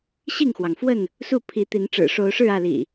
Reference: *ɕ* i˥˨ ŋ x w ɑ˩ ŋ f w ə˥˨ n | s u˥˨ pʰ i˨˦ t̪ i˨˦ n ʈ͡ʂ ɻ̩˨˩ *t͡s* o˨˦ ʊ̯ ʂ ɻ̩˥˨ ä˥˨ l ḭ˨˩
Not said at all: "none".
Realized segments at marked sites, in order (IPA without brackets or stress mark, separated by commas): ɕ, ʂ